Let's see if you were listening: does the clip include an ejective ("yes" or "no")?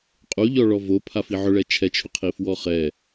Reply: yes